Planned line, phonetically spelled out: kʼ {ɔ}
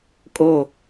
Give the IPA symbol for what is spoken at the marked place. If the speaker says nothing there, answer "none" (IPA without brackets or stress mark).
o